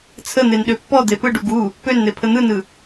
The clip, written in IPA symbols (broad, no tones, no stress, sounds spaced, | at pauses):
t͡sʰ ə n̪ e n ɗ ø pː ɔ d̪ e p ɯ ɖ u ɡ u | p ø n n̪ e pʰ ə n̪ ɯ n ɯ